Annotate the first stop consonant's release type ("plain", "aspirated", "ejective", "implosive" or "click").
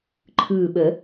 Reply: click